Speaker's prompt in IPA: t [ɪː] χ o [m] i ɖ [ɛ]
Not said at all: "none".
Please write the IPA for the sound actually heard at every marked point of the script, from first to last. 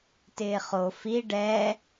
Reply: ɪː, f, ɛ

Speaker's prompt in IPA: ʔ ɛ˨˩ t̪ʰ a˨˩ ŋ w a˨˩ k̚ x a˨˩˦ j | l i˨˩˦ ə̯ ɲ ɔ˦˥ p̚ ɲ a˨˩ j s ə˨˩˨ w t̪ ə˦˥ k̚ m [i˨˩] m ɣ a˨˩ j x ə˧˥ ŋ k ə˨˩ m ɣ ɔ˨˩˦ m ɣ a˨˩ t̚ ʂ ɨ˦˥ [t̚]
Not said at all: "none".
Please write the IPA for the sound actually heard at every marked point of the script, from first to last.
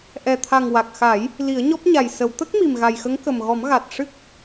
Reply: i˨˩, k̚

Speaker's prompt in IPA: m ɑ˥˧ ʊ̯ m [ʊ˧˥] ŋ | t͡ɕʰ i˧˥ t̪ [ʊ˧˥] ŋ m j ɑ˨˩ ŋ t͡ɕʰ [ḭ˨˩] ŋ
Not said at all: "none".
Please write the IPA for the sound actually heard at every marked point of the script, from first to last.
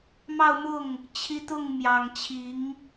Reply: ʊ˥˩, ʊ˥˩, i˧˥

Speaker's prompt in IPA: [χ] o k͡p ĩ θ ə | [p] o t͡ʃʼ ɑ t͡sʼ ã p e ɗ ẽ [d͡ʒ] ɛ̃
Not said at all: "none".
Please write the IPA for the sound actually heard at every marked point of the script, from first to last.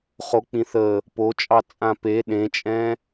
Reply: χ, p, t͡ʃʼ

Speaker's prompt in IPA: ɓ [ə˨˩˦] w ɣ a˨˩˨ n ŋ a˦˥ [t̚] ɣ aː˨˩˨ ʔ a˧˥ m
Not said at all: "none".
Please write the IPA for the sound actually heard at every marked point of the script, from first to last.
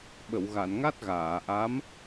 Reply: ə˨˩˨, t̚

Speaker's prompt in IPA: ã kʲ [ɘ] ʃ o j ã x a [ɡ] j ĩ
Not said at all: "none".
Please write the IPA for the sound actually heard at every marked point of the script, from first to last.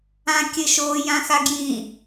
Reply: ɘ, ɡ

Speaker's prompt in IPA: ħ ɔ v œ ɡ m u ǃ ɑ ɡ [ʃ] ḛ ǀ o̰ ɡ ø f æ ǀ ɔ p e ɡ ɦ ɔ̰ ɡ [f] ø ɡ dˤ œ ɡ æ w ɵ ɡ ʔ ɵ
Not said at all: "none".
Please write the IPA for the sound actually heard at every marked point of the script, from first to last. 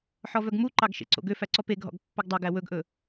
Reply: ʃ, pː

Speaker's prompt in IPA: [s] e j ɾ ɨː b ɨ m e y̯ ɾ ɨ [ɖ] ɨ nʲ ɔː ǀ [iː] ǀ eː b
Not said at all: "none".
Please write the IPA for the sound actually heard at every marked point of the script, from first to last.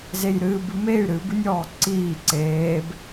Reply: z, b, iː

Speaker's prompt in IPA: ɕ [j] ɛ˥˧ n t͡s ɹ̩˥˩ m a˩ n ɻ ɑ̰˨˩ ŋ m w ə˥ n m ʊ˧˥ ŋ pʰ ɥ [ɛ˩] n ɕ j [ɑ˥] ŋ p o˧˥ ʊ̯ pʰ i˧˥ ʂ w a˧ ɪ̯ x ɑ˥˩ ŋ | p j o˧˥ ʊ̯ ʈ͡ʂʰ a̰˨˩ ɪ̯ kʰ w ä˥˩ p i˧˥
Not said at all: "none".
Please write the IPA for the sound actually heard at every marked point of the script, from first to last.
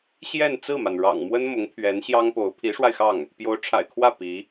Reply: j, ɛ˧˥, ɑ˥

